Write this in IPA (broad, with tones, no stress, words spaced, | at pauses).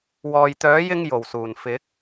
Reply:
wɔː˨jt̪œː˨˥jɪ˧ŋ jo˨˩wsuː˨˩n fɪ˨˥k̚